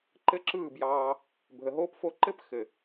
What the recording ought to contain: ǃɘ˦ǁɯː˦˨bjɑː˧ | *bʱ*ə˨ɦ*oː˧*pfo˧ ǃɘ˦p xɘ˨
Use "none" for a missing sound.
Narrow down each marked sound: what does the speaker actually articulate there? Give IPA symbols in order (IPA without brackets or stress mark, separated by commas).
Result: bʱ, oː˧